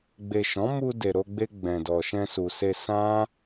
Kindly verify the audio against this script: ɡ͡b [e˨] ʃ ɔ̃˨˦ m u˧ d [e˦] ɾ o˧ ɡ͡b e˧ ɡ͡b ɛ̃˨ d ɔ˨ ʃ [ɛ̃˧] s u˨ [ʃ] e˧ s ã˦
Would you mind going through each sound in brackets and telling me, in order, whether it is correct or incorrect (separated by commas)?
correct, incorrect, correct, incorrect